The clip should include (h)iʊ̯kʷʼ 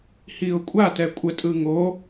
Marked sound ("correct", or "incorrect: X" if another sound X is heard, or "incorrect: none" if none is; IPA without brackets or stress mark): correct